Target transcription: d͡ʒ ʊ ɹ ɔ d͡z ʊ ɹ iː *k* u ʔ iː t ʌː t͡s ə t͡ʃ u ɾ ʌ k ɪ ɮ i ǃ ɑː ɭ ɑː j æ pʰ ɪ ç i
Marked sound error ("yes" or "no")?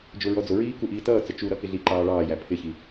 no